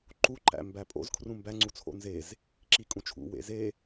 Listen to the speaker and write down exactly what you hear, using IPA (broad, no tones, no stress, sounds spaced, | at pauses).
ǃ u ǃ æ̰ m b æ pʼ o̰ z kʰ r ũ m b æ ŋ͡ǀ u t͡sʰ o̰ n z e z | ǁ i kʼ ũ t͡ʃʰ ṵ w ḛ z e